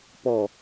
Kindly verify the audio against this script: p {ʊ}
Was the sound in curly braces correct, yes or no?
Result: no